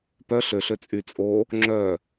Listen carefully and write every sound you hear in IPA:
p œ ɬ ø ɬ ø t͡sʼ y t͡sʼ o | ŋ͡ǁ œ

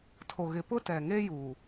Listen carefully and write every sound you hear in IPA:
tʰ o˨ ɣ ɪ˨ p ʊ˦ t ɛ˨ ŋ e˦ j u˨

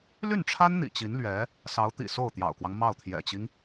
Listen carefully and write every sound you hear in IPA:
l y˥˩ n ʈ͡ʂʰ a˥ n n̪ ḭ˨˩ t͡ɕ i˧˥ n l ɥ ɛ˧˥ | s ɑ˧˥ ʊ̯ t̪ ḭ˨˩ s o˥˩ ʊ̯ t̪ j ɑ̰˨˩ ʊ̯ k w ɑ˦ ŋ m ɑ˥˩ ʊ̯ t̪ʰ j ɛ̰˨˩ t͡ɕ i˦ ŋ

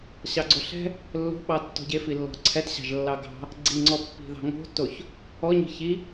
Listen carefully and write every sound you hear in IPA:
ɕ ɑ ɡ͡ǀ o ɬ ɛ̤ | lː o̤ ɓ ɑ tː ɔ̤ ɟ e f i lː ɔ̤ ǀʰ ɛ t ɕ ɑ̤ ʒ lː ɑ ɡ ɑ̤ | ɡ͡ǀ i ŋ͡ǀ ɔ pː i̤ ð ɑ̤ ŋ o̤ tː o ç | ɔ ɲ i̤ ç i

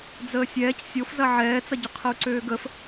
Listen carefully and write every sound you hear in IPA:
d͡z əː sʲ ɛː c sʲ o f z ɐ ʕ ɛː t͡s ɐ ɟ ʏ qʰ ə u̯ ǀ øː ɡ ə f

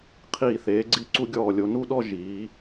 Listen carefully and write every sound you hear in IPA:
qʰ iː˧˩ θ eː˩˧ ɡ͡ǀ i˧ ǀ u˧ ɡʲ ɔː˧˩ lʲ o˩˧ n u˥˧ ɗ ɔ˥˧ ʒ iː˩˧

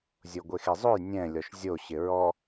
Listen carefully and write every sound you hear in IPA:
zʲ o ɡʷ e x e zˤ o j nʲ ɛ̃ lʲ ɔ ʃ zʲ o ɕ ɪ ɹ ɔ

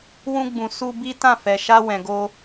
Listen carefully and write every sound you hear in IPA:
w ũ˧ ɡ͡b ũ˨ s u˧ b i˦ t ã˦˨ f ɛ˨ ʃ a˧ w ɛ̃˨ ɡ o˧

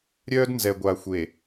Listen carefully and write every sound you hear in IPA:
ɾʲ œː˦ d n z ɛ˨ ɡʷ a˨ xʷ e˨

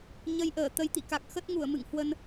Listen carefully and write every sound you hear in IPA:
ɲ ə˧ j ʔ əː˧˩ t̪ ə˨˦ j t̪ ḭ˧˨ k a˨˩ k̚ x ə˦˥ t̚ ŋ u˧˩ ə̯ m ɨ̰˧˨ ŋ h w ə˧ n

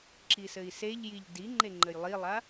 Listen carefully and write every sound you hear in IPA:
ǁ i s ɘ i̯ s e ʎ j i ʎ d i ŋ͡ǃ e ŋ͡ǃ ɘ j lˠ i lˠ a

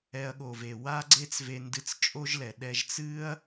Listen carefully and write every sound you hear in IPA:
ɛ˧ ɐ̯ ɠ o˨ v e˨ w a˦ ɡ͡ǀ e˦ t͡s v e˧ n d ɨ˧ t͡s t͡ʃʼ o˦ ʒ l ɛ˨ ɗ ɛ˧ ʒ t͡s ɨ˦ ɐ̯

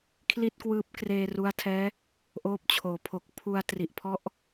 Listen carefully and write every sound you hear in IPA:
kʰ l i˥˩ t̚ k w ɯː˦˥ p̚ k r eː˧ r u˦˥ a̯ tʰ ɛː˦˥ | ʔ oː˦˥ p̚ t͡ɕʰ oː˩˦ pʰ o˨˩ k̚ pʰ u˧ a̯ t r i˨˩ ʔ pʰ ɔ˦˥ ʔ

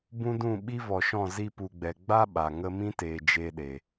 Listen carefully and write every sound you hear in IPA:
b ũ˦ d ũ˦˨ ɓ i˦ v ɔ˨ ʃ ɔ̃˦˨ z i˧ p u˨ ɡ͡b ɛ˨ ɡ͡b a˦ ɓ a˨ ŋ ə˧ m ĩ˦ t eː˨ d͡ʒ e˧ ɗ e˨

